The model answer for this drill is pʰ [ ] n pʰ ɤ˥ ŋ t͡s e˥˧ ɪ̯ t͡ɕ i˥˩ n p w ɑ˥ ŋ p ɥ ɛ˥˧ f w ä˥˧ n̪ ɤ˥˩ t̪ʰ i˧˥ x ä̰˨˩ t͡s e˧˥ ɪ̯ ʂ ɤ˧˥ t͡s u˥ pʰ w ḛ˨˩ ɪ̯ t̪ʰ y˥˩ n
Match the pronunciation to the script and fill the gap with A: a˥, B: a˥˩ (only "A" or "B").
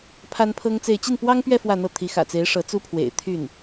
A